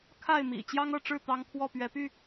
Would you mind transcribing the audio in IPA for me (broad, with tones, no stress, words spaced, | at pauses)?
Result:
kʰa˥˨ɪ̯mḭ˨˩ t͡ɕjɑ˦ŋɤ˥˨ʈ͡ʂɻ̩˥˨ t̪ɑ˦ŋkʰwɔ˥˨pɥɛ˨˦py˥˨